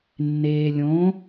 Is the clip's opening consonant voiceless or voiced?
voiced